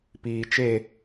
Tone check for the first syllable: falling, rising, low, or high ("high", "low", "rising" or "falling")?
low